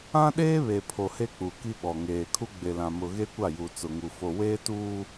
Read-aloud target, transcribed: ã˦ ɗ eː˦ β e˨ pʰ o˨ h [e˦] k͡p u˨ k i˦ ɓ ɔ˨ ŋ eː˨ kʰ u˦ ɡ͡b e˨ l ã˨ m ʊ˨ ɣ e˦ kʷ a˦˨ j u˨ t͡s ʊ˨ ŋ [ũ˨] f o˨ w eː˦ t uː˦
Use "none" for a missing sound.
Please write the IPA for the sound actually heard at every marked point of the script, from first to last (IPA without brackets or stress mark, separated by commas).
e˦, u˨